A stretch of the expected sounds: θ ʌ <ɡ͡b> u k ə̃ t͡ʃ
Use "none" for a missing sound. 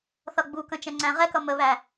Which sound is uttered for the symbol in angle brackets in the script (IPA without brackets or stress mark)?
ɡ͡b